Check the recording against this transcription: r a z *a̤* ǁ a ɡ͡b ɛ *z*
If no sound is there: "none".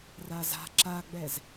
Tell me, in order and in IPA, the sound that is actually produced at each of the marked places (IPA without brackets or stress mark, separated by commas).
a̤, z